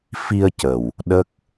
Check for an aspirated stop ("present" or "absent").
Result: absent